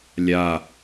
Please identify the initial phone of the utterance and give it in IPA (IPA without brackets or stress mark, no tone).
lʲ